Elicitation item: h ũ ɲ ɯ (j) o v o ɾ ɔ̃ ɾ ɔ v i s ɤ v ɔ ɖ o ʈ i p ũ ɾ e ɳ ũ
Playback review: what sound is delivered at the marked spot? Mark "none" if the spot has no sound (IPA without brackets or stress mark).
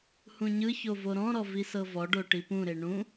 ç